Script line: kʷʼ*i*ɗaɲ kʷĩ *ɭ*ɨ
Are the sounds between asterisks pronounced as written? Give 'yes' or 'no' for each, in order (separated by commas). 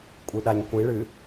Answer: no, yes